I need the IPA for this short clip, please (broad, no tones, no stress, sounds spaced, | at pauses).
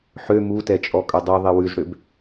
ħ ø m u t ɛ t͡ʃʼ ɔ kʼ ɵ dˤ y ðˤ i w ʉ z ɽ ø b